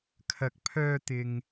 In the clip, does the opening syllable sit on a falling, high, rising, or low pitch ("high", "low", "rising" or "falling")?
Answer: rising